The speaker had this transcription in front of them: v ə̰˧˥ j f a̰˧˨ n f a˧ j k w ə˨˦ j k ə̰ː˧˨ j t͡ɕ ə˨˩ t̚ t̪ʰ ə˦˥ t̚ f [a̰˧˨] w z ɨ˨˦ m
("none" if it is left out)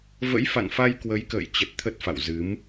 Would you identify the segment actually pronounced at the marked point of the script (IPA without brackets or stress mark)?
a̰˧˨